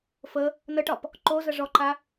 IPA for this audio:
f ə | n ə ʈ ɒ p | ǃ o z ə ʐ ɔ ǃ a

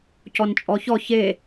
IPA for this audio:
c ɔ n t͡ʃʼ ɔ ç ɔ ç e

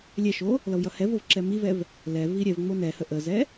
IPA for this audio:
lʲ ɛ ʃ o | l ʌ v j ʌ h ɛ v o v ǁ ɛ m i v ɛ v | l ɛ v i ɾʲ ɛ v ŋ͡m o n ɛ h ə ʔ ə z ɛ

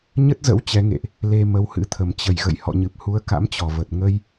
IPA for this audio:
ɲ ə˦˥ t̚ z ə̰˧˥ w t͡ɕ ɛ˨˦ ŋ ḛ˧˨ ʔ | l e˧ m ə˧ w h ɨ̰˧˥ t̪ʰ ə˧˩ m t͡ɕ ə˧˩ j ɣ ə̰˧˨ j h ɔ̰˧˨ ɲ ɨ˨˩ p̚ h u˨˦ ə̯ k a̰˧˥ m t͡ɕ ɔ˧˩ v ə˨˩ t̚ ŋ ə˧ j

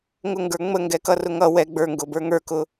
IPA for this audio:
ŋ ʊ ŋ ɡ ə˞ ŋ͡m ə ŋ ɡ ɛ k ʌ r ʊ ŋ ʌ w ɛ ɡ͡b ə˞ ŋ ɡ ʊ b ə˞ ŋ ə˞ k ʊ

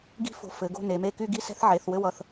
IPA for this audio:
ɡ i̤˥ f o̤˧ f ɘ˩˧ ɡ o̤˥˧ n e˩˧ m e˥˧ k y˥˧ ɡ i˥˧ s ɛ̤˥ θ ʕ e˩˧ θ w ɘ˥ w ʌ˧ θ

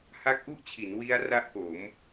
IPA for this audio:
h a˦˥ k̚ ʔ u˥˩ ʔ t͡ɕʰ i˩˦ n w i˦˥ a̯ r a˥˩ ʔ k o˩˦ m

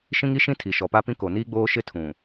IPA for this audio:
ʃ ĩ˦ ŋ i˦ ʃ ĩ˦ tʰ i˨ ʃ ɔ˨ p a˦ p ĩ˦ k o˨ n iː˦ ɡ͡b oː˦ ʃ ɪ˦ tʰ ũ˨

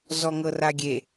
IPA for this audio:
z ɔ ŋ ɤ r a ɡʲ e

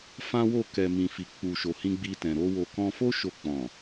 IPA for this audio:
f ã˦ w o˦˨ k ɛ˨ m ĩ˨ f i˨ k͡p u˨ ʃ o˨ h ĩ˧ ɡ͡b i˧ t ɛ̃˨ ɾ o˧ w o˨ k ɔ̃˧ f o˦ ʃ o˧ k͡p ɔ̃˨

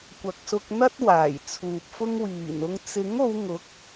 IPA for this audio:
kʷ ɐ˨ k̚ s ʊ˧ k̚ n̪ ɐ˥ t̚ w aː˨˩ j t͡sʰ uː˨ p̚ f ʊ˥ ŋ w iː˨˩ n ʊ˧ ŋ t͡s ɪ˨˥ ŋ o˨˧ w ŋ ʊ˨˥ k̚

